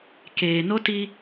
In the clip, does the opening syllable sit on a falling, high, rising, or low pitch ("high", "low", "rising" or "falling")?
low